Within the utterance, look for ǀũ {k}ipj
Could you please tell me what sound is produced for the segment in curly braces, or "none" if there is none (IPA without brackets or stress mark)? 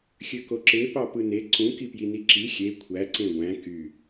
k